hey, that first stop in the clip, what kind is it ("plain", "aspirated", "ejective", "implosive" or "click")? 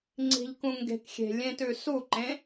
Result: click